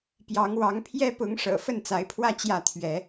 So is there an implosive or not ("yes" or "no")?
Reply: no